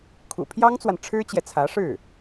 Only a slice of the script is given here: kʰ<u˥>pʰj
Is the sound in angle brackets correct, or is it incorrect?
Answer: incorrect